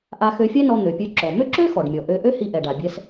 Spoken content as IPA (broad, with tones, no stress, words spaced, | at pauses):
ʔa˧xø˧fʲɛ˥nɔ˧ n̪ø˩pʲø˧ǁɔ˩ mø˥ǁø˥xɔ˩ɖmʲɔ˩ ʔø˧ ʔø˥hi˧ʔɛ˩ɖa˩ bʲɛ˧s